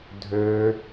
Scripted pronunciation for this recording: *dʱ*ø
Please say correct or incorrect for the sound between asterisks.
correct